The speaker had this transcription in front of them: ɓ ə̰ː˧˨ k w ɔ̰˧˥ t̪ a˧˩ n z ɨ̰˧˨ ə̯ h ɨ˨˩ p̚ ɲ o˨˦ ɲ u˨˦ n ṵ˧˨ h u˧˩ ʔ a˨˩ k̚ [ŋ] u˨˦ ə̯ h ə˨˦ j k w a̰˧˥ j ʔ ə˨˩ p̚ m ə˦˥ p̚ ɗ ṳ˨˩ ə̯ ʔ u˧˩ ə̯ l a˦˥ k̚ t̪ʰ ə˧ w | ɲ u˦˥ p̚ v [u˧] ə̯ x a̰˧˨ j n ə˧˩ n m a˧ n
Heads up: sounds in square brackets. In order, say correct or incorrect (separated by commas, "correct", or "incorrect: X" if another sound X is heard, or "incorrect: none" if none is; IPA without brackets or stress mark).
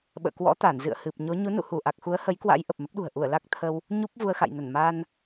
incorrect: x, correct